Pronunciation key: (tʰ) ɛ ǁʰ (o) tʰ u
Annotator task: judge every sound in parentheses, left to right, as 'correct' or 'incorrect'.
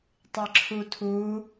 incorrect, incorrect

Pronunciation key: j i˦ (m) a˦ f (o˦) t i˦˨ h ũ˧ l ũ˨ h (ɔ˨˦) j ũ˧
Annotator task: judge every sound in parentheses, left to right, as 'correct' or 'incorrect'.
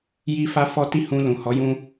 incorrect, incorrect, correct

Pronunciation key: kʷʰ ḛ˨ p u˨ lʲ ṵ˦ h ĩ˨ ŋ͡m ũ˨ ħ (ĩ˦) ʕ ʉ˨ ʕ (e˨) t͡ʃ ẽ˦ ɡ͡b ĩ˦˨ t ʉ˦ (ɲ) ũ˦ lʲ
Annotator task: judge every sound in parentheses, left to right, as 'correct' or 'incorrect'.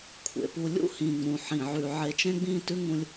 incorrect, correct, incorrect

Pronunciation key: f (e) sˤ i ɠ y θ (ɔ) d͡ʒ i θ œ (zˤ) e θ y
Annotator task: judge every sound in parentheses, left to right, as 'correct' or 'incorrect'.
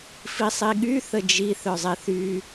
incorrect, incorrect, correct

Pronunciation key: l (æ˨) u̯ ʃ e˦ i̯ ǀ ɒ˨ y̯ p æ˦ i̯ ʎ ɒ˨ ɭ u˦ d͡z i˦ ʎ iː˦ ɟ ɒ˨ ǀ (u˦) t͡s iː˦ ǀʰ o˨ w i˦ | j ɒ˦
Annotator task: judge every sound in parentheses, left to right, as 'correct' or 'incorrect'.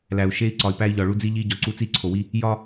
correct, correct

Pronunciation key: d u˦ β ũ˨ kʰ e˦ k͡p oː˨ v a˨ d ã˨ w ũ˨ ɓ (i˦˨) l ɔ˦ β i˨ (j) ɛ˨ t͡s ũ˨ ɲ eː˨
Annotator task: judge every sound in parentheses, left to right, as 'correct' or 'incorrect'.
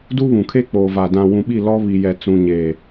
correct, correct

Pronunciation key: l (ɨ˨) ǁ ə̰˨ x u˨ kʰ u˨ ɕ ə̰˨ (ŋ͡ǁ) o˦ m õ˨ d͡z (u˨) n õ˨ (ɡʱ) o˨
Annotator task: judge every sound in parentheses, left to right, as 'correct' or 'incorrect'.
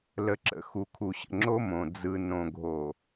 incorrect, correct, incorrect, correct

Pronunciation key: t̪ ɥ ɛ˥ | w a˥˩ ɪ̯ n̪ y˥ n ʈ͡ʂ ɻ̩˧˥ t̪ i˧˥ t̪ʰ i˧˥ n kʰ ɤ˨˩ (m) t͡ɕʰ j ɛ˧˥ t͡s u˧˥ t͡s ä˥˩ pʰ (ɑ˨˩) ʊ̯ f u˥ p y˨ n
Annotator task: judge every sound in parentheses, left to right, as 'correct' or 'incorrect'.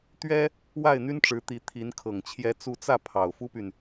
incorrect, correct

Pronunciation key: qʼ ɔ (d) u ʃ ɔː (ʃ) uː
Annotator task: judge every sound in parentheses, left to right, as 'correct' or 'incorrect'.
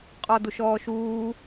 correct, correct

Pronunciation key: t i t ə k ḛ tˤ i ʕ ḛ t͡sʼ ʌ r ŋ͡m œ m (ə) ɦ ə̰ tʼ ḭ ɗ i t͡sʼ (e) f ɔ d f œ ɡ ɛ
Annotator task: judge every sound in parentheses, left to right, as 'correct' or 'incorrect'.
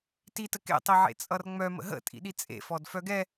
incorrect, incorrect

